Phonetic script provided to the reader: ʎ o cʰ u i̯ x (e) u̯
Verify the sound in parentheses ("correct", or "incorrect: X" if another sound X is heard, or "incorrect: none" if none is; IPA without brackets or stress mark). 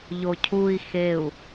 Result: correct